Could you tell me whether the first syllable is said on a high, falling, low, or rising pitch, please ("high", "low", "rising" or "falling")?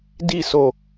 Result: falling